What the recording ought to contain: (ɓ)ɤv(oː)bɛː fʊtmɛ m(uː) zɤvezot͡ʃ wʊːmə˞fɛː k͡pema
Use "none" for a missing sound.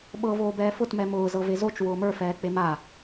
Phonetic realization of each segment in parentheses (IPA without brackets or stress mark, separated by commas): ɓ, oː, ʊː